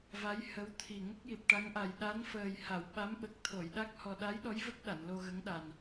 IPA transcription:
va˧˥jhə˧˥wt̪ʰi˨˩ ŋə˦˥k̚ji˨˩p̚ ʈa˧˥ŋʔa˨˩j ɗa˧˥nfəː˨˩jha˨˩˨w ɓa˧˥mɓə˨˩k̚t̪ʰo˨˩˨jɗa˦˥k̚ hɔ˨˩ɗa˧˥jɗɔ˧˥j və˦˥k̚ ɗa˨˩˨nlo˧ɣə˧˥ŋɗa˨˩n

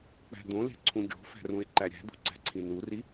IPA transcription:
k͡pæ̤d̪õle̤ ǀʰũɡʲo̤fæ̤rũe̯ ǃæɾʲæ̤d̪ṳ ǀæ̤ǀʰĩnuri

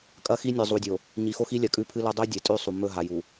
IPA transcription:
kʼɐ˦xi˦nʲɵ˨ zˤu˨dʲo˨ | ɲi˨xo˦xi˦lʲɐ˨ kʼʉ˦pʰɨ˦lɵ˦ dˤʉ˦ dʲe˨tʼʉ˦˨sˤu˨ mɵ˦˨ɦa˨ju˨

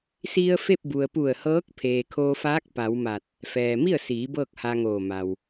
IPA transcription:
si˧ə̯ fe˥˨p̚bu˩ə̯ pu˧˩ə̯hɤː˧˥k̚ pʰeː˩kʰoː˧faː˧˥k̚ pa˩˧wma˧˩t̚ | fɛː˩mi˥˨ə̯siː˩˧ bɤː˥˨k̚ha˧ŋoː˧˩ ma˩w

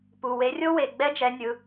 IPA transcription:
pu˩˧˩ we˨˦rʲo˥ we˩˧˩ɡ͡bɛ˥d͡ʒɛ˨˦nʲɯ˩˧˩

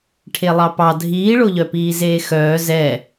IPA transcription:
ʈʰelˠɑpɑ dʱiːɭoʎœpiː zeːxœː zɛ

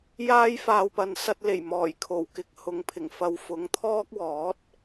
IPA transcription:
jaː˥jfaː˨wpɐ˨˧n sɐ˧t̚le˨˩j mɔː˨˩j kʰo˨˩wkɪ˨˥k̚ hʊ˨˧ŋpʰɪ˨˩ŋfɐ˧w fʊ˨˥ŋt̪ʰɔː˥k̚wɔː˨˥t̚

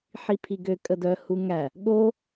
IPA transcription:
ħipʰiɡø kʼədœ huŋæ | ɠo

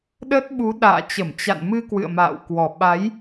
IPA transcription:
ɗə˦˥t̚ɓu˨˦ ɗa̰ː˧˨t͡ɕə˧˩m t͡ɕa̰˧˨nmɨ˧ kwɨ̰˧˨ə̯ma̰ː˧˨wkwɔ˨˩ ɓa˨˦j

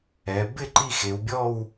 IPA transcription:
ɛ˩˧ bɪ˥˧ ǃi˥˧xe˩˧wbʲɔ˥˧w

